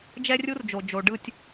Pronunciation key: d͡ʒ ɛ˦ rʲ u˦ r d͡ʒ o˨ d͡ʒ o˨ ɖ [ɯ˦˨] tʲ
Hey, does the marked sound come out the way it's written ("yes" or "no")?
yes